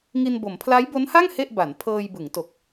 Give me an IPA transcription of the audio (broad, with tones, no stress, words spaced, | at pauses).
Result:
ŋi˧nbo˩˦m pʰla˦˥jbo˦˥nha˥˩ŋ he˥˩ʔba˩˦n pʰɤː˧jbɯ˩˦ŋto˨˩k̚